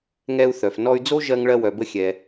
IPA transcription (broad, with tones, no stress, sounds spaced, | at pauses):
ŋ ɛ˧ u̯ θ œ˩ f n ɔ˧ y̯ d͡z o˥ ʒ ɜ˧ ŋ ɭ ɜ˧ w œ˩ b ə˧ xʲ ɛ˩